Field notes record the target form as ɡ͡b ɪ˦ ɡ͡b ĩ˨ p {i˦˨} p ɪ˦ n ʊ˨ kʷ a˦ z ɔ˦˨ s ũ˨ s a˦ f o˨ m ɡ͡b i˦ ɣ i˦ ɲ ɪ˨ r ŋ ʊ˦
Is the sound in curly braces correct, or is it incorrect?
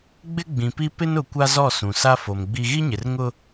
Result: incorrect